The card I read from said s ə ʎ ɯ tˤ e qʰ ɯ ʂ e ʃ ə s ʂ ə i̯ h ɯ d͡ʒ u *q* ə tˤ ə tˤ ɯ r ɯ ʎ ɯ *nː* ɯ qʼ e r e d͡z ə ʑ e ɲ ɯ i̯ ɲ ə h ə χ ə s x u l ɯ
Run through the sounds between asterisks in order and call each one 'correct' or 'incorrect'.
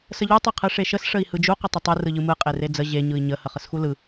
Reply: correct, incorrect: m

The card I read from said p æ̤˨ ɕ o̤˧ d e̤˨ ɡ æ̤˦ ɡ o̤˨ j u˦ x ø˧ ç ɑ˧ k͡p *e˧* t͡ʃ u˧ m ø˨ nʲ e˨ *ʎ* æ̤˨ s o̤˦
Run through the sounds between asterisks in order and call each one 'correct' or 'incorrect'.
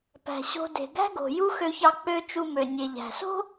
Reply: incorrect: ø˧, correct

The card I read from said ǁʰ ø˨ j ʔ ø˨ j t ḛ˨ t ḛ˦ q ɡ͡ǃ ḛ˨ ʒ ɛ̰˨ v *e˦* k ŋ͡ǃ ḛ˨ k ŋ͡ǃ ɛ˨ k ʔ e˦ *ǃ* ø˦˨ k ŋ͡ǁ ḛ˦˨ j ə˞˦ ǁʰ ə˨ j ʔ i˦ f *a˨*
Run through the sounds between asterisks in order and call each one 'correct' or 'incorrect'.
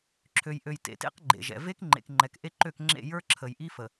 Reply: correct, correct, incorrect: ə˨

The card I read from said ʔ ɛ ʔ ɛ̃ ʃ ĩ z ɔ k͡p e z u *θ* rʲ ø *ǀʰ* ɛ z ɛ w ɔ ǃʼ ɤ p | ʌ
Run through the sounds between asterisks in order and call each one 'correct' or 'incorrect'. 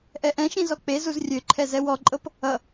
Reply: incorrect: z, incorrect: ǃʰ

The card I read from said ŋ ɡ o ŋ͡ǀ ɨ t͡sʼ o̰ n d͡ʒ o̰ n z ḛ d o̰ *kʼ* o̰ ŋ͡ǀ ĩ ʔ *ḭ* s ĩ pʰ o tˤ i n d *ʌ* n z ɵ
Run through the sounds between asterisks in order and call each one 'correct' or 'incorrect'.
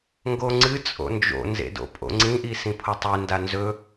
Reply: incorrect: pʼ, incorrect: i, incorrect: a

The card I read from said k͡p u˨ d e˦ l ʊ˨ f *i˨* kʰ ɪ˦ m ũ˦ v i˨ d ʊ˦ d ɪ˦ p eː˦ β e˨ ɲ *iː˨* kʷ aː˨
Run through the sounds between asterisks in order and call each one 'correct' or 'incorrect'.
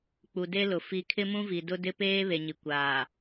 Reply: correct, incorrect: i˨

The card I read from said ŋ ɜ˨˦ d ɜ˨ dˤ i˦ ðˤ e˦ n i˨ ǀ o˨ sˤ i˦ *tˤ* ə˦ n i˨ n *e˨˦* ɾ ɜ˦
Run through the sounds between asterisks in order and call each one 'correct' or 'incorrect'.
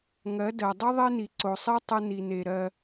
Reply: correct, incorrect: e˨

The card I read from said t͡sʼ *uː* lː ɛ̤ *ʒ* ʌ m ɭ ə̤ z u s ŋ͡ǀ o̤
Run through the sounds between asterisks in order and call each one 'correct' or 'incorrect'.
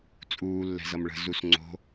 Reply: correct, incorrect: z

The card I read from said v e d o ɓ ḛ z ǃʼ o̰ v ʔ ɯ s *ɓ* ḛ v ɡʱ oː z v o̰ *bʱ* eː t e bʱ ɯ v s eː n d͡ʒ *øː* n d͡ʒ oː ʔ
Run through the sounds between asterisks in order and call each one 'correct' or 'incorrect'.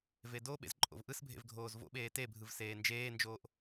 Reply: incorrect: bʱ, incorrect: ɓ, incorrect: eː

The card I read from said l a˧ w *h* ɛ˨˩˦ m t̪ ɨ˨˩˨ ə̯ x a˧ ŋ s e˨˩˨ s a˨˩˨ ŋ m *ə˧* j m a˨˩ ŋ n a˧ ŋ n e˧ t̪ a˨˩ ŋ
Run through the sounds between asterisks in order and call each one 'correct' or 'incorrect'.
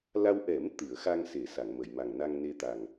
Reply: incorrect: ʔ, incorrect: ə˨˩˨

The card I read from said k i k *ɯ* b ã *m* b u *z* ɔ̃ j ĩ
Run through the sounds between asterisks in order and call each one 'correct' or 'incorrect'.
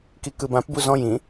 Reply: correct, incorrect: p, correct

